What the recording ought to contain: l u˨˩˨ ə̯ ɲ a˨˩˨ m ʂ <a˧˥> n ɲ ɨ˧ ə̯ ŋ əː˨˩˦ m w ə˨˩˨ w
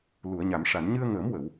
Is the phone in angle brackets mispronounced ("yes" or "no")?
yes